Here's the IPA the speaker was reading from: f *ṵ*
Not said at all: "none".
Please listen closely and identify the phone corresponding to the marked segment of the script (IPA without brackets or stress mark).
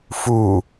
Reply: u